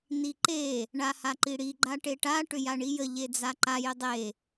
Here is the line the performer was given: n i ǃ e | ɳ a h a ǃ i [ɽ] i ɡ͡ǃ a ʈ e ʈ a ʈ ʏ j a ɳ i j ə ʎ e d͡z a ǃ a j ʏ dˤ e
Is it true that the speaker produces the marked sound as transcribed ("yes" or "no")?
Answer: yes